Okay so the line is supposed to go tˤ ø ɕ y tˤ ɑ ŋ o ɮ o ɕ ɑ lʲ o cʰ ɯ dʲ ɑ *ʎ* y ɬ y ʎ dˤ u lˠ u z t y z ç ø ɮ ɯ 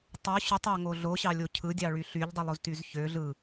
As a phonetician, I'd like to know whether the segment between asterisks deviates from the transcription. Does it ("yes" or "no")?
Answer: yes